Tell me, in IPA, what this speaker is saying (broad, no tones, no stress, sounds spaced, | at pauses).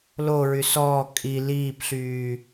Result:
l o ɹ y s ɔː kʼ i l iː p ɬ yː